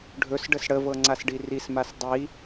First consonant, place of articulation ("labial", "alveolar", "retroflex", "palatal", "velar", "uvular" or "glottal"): retroflex